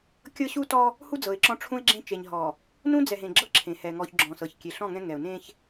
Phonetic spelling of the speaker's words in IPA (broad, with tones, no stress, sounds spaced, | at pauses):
kʲ ɤ˦ ɕ u˦ t ɔ˦ | h u˦ d͡z ɤ˨ ɪ̯ ǁ ɔ̃˦ ʈ͡ʂʰ ũ˦ ɪ̯ ɡ͡ǁ ẽ˦ t͡ʃ e˨ ɲ ɦ ɔ˨ | n ũ˦ d͡z ɛ˨ ɦ ẽ˨ ɡ͡ǁ ɤ˦ ǁʰ ẽ˨ h ɛ˨ ŋ ɔ˨ ç ɡ͡ǁ ɔ̃˨ s ɤ˨ ç kʲ e˨ ɬ ɔ̃˦˨ ŋ ɛ̃˦ ŋ ɛ˨ ʊ̯ n ẽ˦ ç